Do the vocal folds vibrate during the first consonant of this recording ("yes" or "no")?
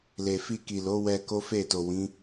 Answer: yes